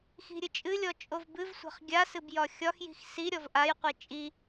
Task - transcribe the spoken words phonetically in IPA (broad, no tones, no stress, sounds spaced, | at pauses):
x i̤ ɾʲ ɨ t͡ʃʼ ɨ lʲ ɔ t͡ʃʼ o v b ɨ v sʷ a̤ χ ɡʲ a s ɨ b j ɒ xʲ ɒ x j i̤ x s i ɾʲ ɔ v ʔ a j qʷ i t͡ʃʼ i